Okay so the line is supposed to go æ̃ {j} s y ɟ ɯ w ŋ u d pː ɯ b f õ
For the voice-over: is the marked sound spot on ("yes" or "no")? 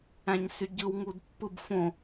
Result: no